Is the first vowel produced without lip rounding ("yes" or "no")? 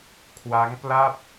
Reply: yes